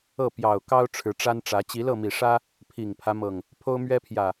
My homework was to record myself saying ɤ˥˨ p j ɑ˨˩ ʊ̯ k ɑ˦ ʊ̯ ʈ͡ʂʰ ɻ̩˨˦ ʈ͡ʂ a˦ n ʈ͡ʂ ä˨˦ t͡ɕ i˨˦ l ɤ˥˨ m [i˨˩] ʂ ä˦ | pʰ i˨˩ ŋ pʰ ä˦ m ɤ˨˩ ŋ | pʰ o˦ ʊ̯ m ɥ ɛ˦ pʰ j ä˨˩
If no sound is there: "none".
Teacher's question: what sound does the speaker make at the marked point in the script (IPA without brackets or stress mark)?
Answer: i˨˩